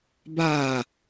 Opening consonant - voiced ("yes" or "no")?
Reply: yes